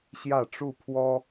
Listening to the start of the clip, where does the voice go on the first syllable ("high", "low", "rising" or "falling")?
falling